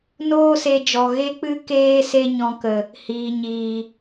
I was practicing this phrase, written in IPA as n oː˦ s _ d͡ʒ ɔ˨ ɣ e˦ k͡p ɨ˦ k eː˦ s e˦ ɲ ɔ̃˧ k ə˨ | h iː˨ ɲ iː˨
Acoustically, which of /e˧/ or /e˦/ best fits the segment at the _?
e˧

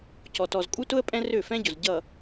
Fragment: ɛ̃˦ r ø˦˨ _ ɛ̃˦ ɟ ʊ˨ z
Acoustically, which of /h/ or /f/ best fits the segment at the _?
f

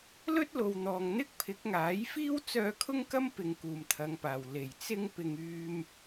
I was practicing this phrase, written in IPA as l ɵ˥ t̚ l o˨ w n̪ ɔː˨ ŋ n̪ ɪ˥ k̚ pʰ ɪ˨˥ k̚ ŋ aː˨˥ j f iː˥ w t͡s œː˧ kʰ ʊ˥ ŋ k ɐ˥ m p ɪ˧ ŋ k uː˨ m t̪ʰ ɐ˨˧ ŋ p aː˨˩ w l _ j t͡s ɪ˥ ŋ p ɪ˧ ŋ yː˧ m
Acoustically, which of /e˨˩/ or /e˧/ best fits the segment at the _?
e˨˩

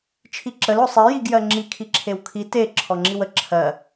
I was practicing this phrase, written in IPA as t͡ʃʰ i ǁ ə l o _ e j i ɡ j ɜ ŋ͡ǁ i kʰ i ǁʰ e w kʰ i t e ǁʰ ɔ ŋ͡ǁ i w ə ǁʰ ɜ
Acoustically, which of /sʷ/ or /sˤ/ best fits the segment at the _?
sˤ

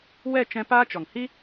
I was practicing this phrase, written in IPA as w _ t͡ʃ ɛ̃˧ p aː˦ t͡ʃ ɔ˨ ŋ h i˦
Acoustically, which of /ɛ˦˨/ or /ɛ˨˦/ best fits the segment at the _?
ɛ˦˨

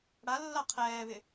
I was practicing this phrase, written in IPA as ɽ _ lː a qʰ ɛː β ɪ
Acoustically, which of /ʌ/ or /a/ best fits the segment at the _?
a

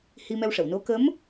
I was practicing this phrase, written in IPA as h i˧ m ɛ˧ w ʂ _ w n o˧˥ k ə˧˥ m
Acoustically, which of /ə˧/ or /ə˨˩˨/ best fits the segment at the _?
ə˨˩˨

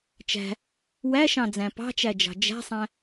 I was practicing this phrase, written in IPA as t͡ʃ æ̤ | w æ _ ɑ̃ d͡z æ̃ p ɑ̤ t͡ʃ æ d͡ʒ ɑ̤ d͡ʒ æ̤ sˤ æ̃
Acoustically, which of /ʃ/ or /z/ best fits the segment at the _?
ʃ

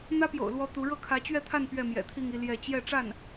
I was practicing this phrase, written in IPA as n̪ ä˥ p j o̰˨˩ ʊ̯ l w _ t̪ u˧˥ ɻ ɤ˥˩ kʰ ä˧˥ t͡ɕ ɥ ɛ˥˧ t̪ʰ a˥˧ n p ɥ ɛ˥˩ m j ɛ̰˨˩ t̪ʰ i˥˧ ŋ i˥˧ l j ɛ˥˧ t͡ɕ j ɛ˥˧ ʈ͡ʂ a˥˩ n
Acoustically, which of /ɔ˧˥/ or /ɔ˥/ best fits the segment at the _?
ɔ˧˥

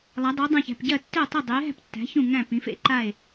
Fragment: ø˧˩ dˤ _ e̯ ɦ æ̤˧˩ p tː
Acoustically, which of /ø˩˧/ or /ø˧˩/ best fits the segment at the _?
ø˩˧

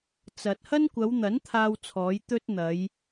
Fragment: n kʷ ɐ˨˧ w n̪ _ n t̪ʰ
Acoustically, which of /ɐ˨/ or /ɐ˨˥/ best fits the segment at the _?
ɐ˨˥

